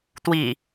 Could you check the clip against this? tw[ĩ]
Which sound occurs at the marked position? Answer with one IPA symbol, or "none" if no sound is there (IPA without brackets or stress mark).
i